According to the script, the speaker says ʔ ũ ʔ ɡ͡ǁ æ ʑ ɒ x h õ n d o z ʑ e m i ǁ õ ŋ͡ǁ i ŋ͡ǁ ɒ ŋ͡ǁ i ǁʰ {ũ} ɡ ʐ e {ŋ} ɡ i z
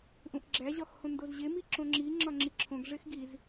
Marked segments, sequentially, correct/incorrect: incorrect, incorrect

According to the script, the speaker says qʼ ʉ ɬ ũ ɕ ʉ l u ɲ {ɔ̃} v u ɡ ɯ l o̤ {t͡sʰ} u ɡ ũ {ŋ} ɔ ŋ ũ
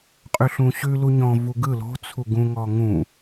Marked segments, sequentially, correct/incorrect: correct, correct, correct

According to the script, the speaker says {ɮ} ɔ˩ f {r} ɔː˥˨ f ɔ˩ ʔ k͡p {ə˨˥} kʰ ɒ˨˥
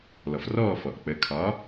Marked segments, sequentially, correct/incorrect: incorrect, correct, correct

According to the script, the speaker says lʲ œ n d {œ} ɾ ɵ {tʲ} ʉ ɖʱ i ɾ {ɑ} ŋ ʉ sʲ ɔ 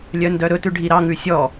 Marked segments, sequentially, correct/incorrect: correct, incorrect, correct

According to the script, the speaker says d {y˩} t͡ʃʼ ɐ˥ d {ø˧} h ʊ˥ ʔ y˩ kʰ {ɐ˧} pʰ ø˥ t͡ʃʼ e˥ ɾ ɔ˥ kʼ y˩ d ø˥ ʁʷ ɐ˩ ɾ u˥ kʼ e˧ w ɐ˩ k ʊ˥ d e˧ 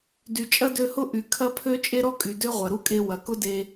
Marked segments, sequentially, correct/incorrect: correct, correct, incorrect

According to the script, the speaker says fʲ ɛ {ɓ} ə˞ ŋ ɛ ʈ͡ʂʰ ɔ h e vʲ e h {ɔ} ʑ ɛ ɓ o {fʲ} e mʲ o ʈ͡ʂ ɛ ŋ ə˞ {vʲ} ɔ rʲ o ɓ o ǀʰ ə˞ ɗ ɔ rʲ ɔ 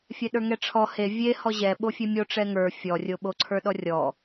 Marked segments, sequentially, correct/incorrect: incorrect, correct, correct, incorrect

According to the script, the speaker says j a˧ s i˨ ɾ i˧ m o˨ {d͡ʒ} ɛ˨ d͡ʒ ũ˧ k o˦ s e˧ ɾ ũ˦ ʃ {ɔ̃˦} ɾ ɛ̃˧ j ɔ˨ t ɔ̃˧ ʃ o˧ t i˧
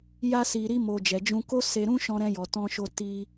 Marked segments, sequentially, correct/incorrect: correct, incorrect

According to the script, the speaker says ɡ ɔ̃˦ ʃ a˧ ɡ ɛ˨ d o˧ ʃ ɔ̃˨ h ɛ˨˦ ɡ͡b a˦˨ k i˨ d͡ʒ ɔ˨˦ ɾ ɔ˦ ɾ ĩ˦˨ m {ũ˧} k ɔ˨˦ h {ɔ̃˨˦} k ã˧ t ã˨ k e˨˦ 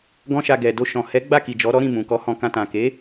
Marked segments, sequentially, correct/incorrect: incorrect, incorrect

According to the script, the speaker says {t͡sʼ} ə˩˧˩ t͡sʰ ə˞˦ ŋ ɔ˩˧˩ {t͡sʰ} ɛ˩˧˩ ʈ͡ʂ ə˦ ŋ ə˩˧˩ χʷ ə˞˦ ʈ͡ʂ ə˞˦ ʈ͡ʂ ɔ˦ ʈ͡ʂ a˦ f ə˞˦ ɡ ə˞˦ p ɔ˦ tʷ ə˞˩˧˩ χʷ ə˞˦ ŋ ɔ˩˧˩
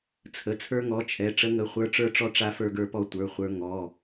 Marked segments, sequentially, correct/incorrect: incorrect, incorrect

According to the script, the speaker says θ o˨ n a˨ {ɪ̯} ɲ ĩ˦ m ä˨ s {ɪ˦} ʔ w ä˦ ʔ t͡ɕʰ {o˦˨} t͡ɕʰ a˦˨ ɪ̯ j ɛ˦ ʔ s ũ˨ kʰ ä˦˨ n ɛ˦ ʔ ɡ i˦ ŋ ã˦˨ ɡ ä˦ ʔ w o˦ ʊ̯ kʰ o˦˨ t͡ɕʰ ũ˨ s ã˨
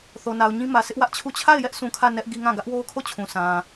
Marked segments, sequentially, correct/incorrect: incorrect, correct, incorrect

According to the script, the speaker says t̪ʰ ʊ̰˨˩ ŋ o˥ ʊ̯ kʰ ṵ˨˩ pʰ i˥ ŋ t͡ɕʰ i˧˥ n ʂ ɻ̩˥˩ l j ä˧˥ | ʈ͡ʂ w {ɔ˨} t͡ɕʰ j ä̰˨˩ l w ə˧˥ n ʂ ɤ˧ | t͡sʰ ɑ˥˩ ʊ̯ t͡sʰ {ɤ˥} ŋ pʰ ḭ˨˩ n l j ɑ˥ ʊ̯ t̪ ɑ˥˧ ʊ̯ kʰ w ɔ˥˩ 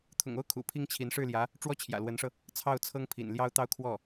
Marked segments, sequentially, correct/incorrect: incorrect, correct

